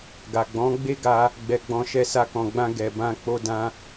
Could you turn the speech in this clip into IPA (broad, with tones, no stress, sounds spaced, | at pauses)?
ɡ a˨ ɡ͡b ɔ̃˨˦ ɡ͡b e˦ ɡ a˦ | ɡ͡b ɛ˨ ɡ͡b ɔ̃˨ ʃ ɛ˧ s a˧ k ɔ̃˨ ɡ͡b ã˧ ɡ ɛ˨ b ã˧ k͡p o˧ d ã˦